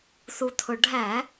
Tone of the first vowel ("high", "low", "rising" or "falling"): low